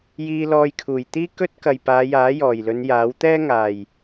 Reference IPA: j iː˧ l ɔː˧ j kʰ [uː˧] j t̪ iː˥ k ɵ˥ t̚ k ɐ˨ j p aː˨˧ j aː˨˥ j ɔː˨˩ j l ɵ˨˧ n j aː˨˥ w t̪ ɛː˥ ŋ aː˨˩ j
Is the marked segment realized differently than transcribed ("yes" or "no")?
yes